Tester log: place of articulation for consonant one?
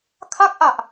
velar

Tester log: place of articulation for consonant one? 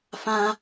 labial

